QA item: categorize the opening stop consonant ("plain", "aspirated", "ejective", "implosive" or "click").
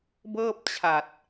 plain